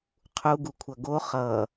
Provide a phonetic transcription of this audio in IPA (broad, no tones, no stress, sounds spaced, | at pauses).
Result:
qʰ u ɡ u kʷʰ ʌ ɡ o χ ʌ